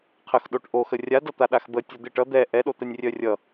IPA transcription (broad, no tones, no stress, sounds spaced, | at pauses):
qʰ ə x ɗ o ʈ ʔ o x ə rʲ a d ʌ t̪ a ɗ a x b ə tʲ o d̪ ɪ ʈ ʌ d̪ ɛ ʔ ɛ ɗ o t̪ ɛ nʲ rʲ œ rʲ ʌ